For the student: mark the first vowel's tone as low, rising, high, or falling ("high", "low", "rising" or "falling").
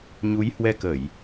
rising